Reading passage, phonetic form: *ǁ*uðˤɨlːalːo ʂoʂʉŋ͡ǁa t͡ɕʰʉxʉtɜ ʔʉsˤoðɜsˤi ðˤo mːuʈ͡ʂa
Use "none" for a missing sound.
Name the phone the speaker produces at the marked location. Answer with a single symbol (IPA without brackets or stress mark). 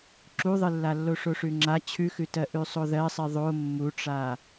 ǁ